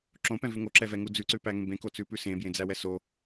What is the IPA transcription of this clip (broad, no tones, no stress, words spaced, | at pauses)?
ǁõpɛ̃vʉ ŋoǁɛvɛŋu d͡zʉǀʉpæŋẽ bẽkot͡sʉpʉ sẽbjẽd͡zæwɛ so